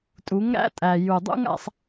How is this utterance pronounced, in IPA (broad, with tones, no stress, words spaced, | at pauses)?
tʼu˨˦ŋɾæ̰˦tʼæ˨ ju˨dˤṵ˦ŋa̰˧sˤ